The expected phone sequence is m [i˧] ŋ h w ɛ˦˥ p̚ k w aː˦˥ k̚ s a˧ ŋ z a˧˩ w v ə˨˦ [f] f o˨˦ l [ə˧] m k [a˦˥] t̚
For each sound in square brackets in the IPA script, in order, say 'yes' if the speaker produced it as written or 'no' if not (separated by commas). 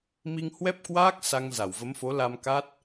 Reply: yes, no, no, yes